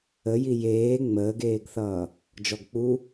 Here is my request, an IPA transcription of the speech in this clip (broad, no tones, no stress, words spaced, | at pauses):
əji jeː ŋ͡məːɡeːɡθʌː | d͡ʒɔɡk͡pu